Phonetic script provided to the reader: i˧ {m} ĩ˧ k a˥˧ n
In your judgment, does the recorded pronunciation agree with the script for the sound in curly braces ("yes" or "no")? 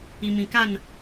yes